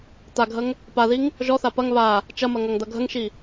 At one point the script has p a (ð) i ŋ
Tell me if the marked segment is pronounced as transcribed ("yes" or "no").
yes